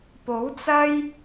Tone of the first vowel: rising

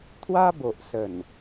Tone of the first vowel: high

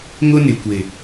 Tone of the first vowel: high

